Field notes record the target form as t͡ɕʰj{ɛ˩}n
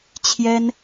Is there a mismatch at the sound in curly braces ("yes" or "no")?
yes